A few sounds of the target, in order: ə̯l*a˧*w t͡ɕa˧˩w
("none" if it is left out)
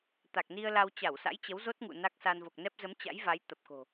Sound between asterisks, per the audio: a˧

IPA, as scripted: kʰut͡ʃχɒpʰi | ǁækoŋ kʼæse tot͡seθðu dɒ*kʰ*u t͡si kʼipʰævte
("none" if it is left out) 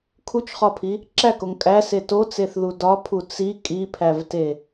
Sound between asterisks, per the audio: pʰ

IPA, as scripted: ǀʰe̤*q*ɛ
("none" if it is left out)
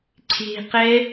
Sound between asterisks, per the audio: q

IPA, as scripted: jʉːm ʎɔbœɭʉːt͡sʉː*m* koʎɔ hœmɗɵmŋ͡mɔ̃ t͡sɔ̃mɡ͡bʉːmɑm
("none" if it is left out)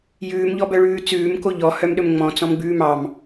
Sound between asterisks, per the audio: m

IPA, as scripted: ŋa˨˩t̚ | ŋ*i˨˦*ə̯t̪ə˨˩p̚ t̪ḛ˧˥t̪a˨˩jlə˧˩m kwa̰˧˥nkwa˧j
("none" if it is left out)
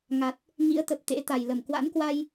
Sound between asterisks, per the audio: ḭ˧˥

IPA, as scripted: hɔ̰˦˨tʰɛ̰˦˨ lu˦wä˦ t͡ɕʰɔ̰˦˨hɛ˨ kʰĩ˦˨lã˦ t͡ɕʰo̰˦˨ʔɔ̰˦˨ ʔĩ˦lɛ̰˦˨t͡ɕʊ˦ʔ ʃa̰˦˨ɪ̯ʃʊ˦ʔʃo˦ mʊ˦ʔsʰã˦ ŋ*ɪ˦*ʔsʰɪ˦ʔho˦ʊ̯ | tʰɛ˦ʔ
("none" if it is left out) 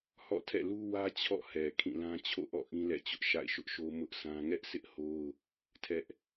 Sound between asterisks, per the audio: ɛ˦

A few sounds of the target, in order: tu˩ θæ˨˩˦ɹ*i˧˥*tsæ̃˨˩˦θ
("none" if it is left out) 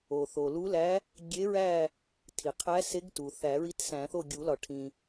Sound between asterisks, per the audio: i˧˥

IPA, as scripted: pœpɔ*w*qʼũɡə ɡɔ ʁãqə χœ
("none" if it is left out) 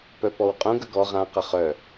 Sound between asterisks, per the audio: w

